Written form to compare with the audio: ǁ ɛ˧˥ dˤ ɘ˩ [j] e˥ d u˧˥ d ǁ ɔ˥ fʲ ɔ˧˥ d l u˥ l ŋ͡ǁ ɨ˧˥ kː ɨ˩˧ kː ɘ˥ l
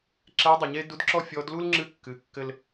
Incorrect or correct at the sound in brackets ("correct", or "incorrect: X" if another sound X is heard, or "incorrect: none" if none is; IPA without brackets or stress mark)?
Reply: incorrect: ɲ